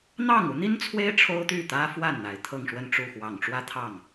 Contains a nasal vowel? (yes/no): no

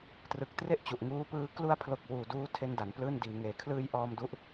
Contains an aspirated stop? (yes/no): yes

